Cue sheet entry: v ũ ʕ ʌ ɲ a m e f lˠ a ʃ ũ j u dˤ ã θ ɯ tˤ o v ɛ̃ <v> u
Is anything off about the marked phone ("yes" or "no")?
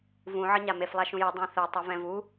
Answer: no